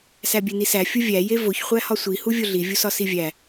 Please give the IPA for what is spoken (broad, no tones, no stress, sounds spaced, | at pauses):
s æ bʲ e n i s æ fʲ u vʲ æ j e v o ç χʷ æ h ɒ sʷ i h u vʲ o ɮ i vʲ u s ɒ s i vʲ æ